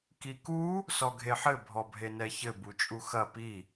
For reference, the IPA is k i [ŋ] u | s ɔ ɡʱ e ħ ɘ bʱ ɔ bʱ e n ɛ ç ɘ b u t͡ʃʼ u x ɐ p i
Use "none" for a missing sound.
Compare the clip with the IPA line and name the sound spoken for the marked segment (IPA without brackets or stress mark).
k